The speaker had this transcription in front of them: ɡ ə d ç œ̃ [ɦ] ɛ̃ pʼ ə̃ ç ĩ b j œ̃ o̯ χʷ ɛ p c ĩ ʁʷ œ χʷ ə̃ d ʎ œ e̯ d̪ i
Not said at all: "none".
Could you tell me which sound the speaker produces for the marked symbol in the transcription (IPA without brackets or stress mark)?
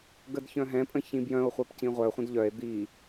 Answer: ɦ